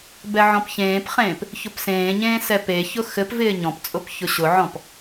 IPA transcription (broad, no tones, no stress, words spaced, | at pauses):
bɛʕɔ̃pçẽːpχẽːp | çʊpsẽːɲẽː sɛpeçʊ xɘp vɪːɲɔ̃pt͡sʼʊp çʊɕʊʕɔ̃p